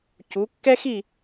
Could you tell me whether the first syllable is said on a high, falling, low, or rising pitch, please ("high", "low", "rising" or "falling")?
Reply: rising